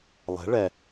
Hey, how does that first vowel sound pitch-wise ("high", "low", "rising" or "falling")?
rising